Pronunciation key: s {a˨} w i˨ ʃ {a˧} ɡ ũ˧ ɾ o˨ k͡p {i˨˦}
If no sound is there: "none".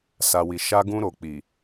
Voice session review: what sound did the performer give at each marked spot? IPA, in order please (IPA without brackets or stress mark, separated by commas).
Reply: a˨, a˧, i˨